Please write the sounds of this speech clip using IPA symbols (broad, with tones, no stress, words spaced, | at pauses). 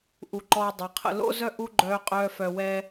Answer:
ʔu˨ǃɔː˧dˤə˞˨qʰə̰˧ lo̰˦zœ˦ ʔu˦ɡ͡ǃœː˧qʼœː˧ fœ˨wɛː˧